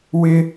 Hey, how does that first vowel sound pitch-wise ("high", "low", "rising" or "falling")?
high